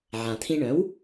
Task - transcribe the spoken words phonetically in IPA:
ʕã˩t̪ʰĩ˧ɳœ̃˩˥w

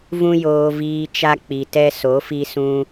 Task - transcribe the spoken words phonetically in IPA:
vũ˦joː˧viː˧ t͡ʃa˦k͡pi˨tɛ˦ so˨˦fi˧sũ˧

